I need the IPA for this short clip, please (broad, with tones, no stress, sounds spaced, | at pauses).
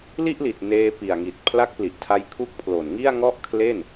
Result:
l i˥˩ ʔ l i˨˩ t̚ n eː˧ p i˨˩ a̯ ŋ i˨˩ t̚ pʰ l a˦˥ k̚ p l i˨˩ ʔ tʰ a˧ j kʰ u˦˥ k̚ pʰ l o˨˩ n ŋ i˥˩ a̯ ŋ ɔ˥˩ ʔ kʰ l e˥˩ n